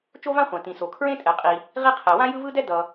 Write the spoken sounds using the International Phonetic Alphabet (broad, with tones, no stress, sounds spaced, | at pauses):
t͡ʃ o˥ v ã˥ χʷ ã˩ t ĩ˩ s o˩ kʰ ɹ ẽ˥ tʼ ɛ˩ qʼ i˩ | ʁ i˥ qʰ ɛ˩ w ã˥ j ɯ˥ v ɯ˥ d ɛ˥ d ʌ˩